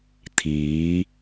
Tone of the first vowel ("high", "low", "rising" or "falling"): rising